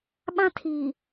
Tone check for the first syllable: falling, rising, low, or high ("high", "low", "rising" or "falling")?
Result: high